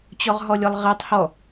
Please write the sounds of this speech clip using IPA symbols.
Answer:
t͡ɕ ɔ ʁ ɦ ɔ lʲ ɔ lˠ ʁ ɛ tˤ h ɔ

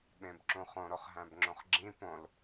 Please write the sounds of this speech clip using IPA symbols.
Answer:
ɓ ẽ b ǁ ũ χ õ ɾ o χ ɦ æ̃ b ŋ͡ǁ õ χ ɡ͡ǁ ĩ p õ l

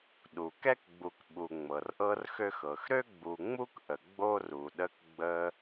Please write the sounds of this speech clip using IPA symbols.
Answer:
ɗ u˩ k ɛ˥ k ɡ͡b u˨ k ɓ u˨ ŋ͡m ɤ˩ r ʔ ɤ˥ r x ø˥ x ɤ˩ x ɾ ø˥ ɡ͡b u˨ ŋ͡m u˥ k ʔ ə˩ ɡ͡b o˥ r u˩ ɗ ə˦ k ɡ͡b ə˦

